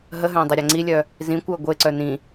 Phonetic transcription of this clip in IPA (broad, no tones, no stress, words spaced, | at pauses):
ɦəɦœ̃ dˤɪɾʲaŋ͡ǀilʲœ | zĩkʷœɐ̯ ɡʷeǀœ nĩ